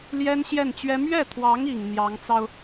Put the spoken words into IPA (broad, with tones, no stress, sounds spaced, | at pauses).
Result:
l j ɛ˥ n ɕ j ɛ˥˩ n t͡ɕ ɥ ɛ˥ m ɥ ɛ˥˩ t̪ʰ w ɑ˧˥ ŋ i˨˩ ŋ n̪ j ɑ˧˥ ŋ t͡s ɑ˧ ʊ̯